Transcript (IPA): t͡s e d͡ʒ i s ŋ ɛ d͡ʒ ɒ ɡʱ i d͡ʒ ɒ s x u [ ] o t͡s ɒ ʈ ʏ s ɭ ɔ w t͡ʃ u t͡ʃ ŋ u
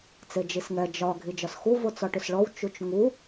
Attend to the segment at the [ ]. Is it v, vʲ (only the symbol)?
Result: v